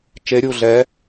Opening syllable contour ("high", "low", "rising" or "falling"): rising